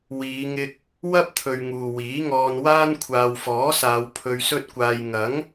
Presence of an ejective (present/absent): absent